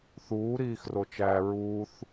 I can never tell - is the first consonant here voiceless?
yes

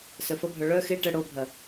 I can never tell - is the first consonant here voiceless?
yes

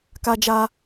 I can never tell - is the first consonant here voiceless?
yes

